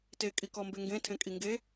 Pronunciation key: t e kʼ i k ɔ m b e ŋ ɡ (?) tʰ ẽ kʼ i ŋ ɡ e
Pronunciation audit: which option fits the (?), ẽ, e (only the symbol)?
ẽ